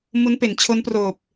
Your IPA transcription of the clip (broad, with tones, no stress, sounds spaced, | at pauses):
m u˦˥ n p e˩˦ n t͡ɕʰ o˦˥ n p r oː˨˩ p̚